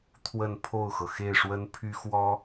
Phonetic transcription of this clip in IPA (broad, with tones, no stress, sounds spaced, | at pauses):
t̪ʰ w ə˥˧ n pʰ o˥˩ ʊ̯ x ɤ˩ x e˥˩ ɪ̯ ʂ w ə˥ n pʰ y˥ x w ɔ˥